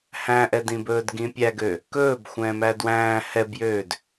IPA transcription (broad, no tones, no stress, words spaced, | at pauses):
hæ̃ʔɛdĩbɵːd ɡĩpʲæɡø | kɵːb xʷɛ̃ːmæːdwæ̃ː hɛbjøːd